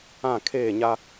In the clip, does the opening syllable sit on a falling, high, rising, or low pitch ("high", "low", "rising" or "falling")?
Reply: falling